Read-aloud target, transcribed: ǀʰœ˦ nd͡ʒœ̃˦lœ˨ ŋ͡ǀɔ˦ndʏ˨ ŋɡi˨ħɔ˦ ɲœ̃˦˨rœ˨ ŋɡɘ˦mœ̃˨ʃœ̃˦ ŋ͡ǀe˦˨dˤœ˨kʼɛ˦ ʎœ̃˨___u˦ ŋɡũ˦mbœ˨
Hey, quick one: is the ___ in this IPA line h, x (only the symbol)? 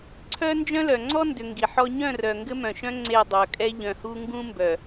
h